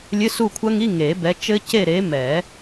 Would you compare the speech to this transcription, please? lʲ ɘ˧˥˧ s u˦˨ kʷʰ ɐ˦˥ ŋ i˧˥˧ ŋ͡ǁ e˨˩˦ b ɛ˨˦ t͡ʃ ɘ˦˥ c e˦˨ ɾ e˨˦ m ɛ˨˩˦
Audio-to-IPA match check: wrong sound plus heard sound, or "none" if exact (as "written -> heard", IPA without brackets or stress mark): ŋ͡ǁ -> ŋ